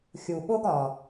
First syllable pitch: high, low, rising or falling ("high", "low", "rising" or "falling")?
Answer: low